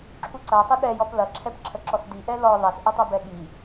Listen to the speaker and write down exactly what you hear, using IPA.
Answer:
ǁʰuǀɐ sˤəɗɛjɔp lɐǁʰɛp ǁʰəǁɔsdi ʔɛlɔ ðˤɛsʔətˤu bɛɠi

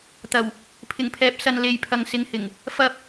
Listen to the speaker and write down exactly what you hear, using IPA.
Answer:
t̪ɐ˨˩w | pʰɪ˨˩ŋpʰɛː˨p̚sɐ˨n le˨jpʰɐ˨ŋsɪ˨˧ŋhɪ˨˩ŋ | fɐ˧p̚

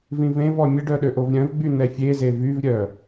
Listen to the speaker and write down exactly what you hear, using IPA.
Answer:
vĩvẽvɔ mʲəɖœ ɗøʔovɾʲœ̃vɡ͡by n̪ɛfʲeze vyvɾʲœ

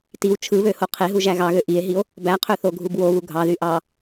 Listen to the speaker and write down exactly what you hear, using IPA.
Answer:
tiw t͡ʃʰɯβøho qʰeɦuʒæ ɣɑɣø ʔie̯ɦio̯ | bæqʰøθoɡʱub woβu ɡʱɑðy ʔɑ

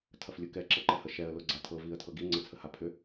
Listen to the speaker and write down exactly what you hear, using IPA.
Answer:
tʰɐflʲʊkɛ ǁɤǃɛhəʃɛə̯ lʊɡ͡ǀatʰɤ viə̯tʰɤɡi ŋ͡ǀət͡sʰəhapʰʏ

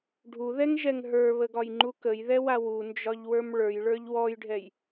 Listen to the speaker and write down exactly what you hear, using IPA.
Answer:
ɖʱuðɛŋʒɛŋ ɦə˞βəɡɒjŋ͡ǃu kəjðɛwa wund͡ʒɒʎwə˞m ɭə˞jɭə˞ʎ wɔjɖʱɛj

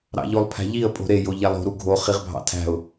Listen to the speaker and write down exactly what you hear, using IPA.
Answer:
ɾɑ̰ʎolˠpʰæ̤ʎiə̯ pʼo̤ɾe joʎælˠo̤ ɾuɡʱo χiʁbʱɑ̰tʰæ̤ʊ̯

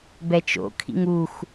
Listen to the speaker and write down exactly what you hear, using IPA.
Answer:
bɛt͡ʃo̰ kʰḭŋux

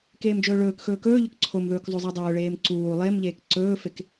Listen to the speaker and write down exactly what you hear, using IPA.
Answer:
keːmd͡ʒɵːɭɵːkxɵː kɵːʎɵk ǀʰomðɵːk zˤuzˤedˤɵːɭeːm ǀuː lˠemʎeːk ǀɵːfek

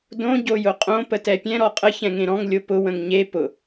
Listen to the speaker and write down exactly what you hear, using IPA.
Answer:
dõ ɟojʊqʼõ pətɛpʲɛ̃ ɾɔqʼə çɛ̃ŋẽɾɔ̃ŋ lʲopʊ wə̃ŋɲe pʊ

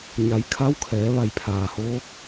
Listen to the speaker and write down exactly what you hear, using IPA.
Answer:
ɲa˩˧j kʰa˧˥wkʰɛː˩˧ ʋa˧˩jpʰaː˩hoː˧˥k̚

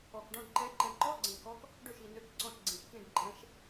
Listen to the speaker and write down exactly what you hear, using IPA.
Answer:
ɔ˨˩kɖɔ̃˧˥˧ɖǃɛ˧˥ ǃɛ̃˨˩ǃɔ˧˥˧ɡ͡ǀɛ̃˨˩ kɔ˧˥k | ɖø˥˩ʃi˨˩ nø˧˥˧kǀɔ̃˧˥˧ʃɡ͡ǀĩ˨˩ʃ kĩ˥˩ɖǃʼɛ̃˧˥ʃ

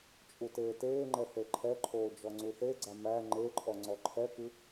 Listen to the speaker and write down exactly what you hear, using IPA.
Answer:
t͡ʃʼuteːteːŋ͡ǃɛ θeǃʰɛǃʰoː d͡ʒɔŋ͡ǀuθeɡ͡ǀa mæ ŋ͡ǃeǃʼɔ ŋ͡ǀɔǃʰɛkɨ

